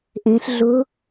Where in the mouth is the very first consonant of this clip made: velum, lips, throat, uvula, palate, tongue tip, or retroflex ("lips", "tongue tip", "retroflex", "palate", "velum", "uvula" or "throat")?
throat